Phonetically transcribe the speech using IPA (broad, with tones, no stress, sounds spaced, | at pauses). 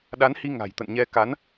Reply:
ɗ a˨˦ n h i˧ ŋ a̤˨˩ j t̪ ə̰˧˨ n ɲ ɛ˧ k a˨˦ n